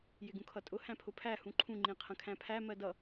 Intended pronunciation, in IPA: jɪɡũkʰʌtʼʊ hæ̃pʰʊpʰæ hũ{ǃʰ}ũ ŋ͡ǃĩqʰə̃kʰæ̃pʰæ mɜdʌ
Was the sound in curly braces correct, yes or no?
yes